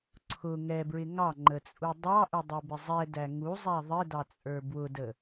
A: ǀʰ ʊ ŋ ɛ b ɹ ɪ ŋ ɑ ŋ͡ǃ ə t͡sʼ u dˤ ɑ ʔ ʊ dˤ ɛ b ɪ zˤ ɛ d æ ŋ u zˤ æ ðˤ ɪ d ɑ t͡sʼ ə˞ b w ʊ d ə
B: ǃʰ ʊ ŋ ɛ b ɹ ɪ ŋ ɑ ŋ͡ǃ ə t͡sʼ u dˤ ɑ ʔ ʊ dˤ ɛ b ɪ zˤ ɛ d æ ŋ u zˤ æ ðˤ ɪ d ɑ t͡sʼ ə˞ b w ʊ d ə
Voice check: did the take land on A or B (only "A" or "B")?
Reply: A